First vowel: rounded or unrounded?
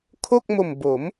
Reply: rounded